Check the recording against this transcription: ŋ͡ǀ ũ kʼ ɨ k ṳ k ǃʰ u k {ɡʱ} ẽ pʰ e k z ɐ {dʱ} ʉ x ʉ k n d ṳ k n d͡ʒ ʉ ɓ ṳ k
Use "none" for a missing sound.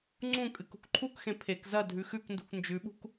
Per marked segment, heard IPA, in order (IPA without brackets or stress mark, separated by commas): x, dʱ